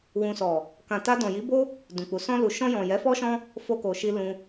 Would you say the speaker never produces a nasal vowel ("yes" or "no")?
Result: no